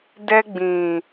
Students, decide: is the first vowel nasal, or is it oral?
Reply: oral